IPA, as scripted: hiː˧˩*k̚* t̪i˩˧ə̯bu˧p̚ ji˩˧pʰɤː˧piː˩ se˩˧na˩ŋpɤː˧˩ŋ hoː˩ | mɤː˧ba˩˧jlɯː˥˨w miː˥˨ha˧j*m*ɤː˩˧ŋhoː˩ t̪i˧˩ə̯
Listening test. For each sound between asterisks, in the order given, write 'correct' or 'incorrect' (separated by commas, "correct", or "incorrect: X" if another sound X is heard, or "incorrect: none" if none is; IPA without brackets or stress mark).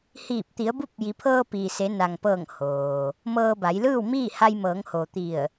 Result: incorrect: p̚, correct